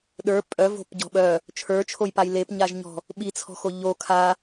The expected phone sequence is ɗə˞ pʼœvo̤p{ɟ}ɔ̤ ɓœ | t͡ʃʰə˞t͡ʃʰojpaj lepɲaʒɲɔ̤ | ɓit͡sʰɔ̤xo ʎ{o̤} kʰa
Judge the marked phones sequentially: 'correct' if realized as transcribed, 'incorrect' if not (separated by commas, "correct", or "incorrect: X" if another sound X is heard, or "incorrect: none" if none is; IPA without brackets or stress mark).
correct, incorrect: o